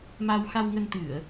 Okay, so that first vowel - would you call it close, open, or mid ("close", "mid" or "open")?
open